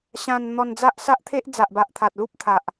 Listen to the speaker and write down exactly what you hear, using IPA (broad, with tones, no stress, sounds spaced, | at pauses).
ɕ ã˧ n n̪ ɔ˧ n d͡z a˦ ʔ s a˦ ʔ t̪ʰ e˦ ʔ d͡z a˨ ʔ b a˨ ʔ t̪ʰ a˨ t̚ l u˦ p̚ t̪ʰ a˨ ʔ